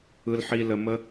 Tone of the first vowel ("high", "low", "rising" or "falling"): high